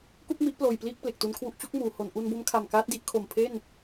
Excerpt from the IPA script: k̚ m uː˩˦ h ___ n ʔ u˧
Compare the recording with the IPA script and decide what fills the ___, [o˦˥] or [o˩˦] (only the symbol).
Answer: o˩˦